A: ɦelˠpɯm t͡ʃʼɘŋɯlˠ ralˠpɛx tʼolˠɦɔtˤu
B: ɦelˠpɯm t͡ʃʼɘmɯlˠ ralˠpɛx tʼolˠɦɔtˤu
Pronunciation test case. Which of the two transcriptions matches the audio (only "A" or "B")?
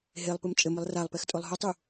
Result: B